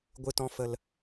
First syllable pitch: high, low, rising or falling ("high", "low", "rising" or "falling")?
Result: high